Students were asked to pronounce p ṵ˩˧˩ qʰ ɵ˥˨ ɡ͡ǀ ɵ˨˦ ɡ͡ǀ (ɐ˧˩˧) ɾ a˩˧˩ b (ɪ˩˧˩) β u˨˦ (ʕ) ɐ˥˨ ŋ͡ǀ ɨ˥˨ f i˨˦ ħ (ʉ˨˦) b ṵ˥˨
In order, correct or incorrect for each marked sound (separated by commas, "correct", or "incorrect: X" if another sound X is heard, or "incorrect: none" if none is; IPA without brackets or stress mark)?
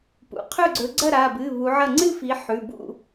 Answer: incorrect: ɐ˥˨, incorrect: ɨ˩˧˩, correct, incorrect: ʉ˩˧˩